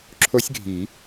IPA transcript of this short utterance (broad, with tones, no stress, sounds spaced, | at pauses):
ǁʰ o˦˥ sʲ ɡʱ i˨˩˦